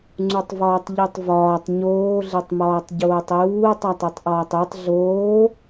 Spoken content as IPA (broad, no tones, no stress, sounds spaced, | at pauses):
ŋ͡ǀ u tˤ v ɒː tˤ ʎ i tˤ v ɒː tˤ ɲ oː ɮ e tˤ m ɒː tˤ ɟ oː tˤ j uː tˤ æ tˤ e tˤ ʔ ɒː tˤ e tˤ ɮ oː